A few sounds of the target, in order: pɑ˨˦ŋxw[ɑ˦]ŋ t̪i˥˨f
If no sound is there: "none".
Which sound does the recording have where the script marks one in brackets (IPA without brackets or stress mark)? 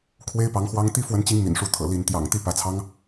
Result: ɑ˦